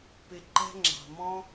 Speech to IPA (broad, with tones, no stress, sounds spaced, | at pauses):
p ɪ˨ ǃ ɛ̤˦ ŋ͡ǁ ɑ̤˩ m ɔ̃˦